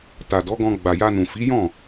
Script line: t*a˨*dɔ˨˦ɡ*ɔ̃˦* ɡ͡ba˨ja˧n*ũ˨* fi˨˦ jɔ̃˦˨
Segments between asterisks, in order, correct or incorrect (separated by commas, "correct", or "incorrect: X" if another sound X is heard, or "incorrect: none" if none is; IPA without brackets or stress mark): correct, incorrect: ɔ̃˧, correct